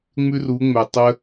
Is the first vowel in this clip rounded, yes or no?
yes